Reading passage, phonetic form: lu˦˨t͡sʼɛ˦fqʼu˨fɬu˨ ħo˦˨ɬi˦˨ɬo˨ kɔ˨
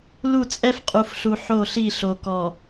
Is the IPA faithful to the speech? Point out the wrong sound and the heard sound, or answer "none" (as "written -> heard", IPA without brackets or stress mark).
none